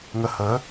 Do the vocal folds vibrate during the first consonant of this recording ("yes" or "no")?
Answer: yes